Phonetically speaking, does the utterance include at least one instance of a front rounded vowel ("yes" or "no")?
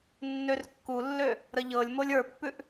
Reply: yes